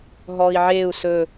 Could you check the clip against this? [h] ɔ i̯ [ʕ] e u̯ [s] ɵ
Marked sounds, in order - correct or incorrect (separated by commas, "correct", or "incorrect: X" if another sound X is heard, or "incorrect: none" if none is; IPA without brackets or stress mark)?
incorrect: ɦ, correct, correct